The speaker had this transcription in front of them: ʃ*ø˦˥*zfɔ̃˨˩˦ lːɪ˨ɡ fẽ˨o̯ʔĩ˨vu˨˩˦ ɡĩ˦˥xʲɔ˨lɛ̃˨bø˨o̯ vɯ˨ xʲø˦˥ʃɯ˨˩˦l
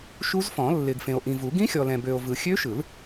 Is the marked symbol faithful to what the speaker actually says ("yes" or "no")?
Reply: no